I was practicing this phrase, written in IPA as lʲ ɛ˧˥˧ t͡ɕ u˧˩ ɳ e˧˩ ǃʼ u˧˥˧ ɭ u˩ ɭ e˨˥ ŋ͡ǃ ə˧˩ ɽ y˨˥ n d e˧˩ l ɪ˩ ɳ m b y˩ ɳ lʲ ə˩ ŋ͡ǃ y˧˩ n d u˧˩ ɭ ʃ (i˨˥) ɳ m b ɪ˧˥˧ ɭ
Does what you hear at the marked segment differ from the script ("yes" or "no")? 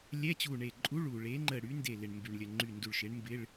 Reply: yes